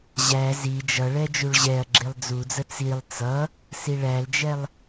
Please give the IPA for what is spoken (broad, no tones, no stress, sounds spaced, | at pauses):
ʑ æ z i d͡ʒ ʌ ɭ ɛ d͡ʒ u ɭ ʑ ɛ ɐ̯ ɡ͡ǁ i lˠ d͡z u d͡z ə t͡s i lˠ t͡s ʌ | s i ɭ æ l d͡ʒ ɛ lˠ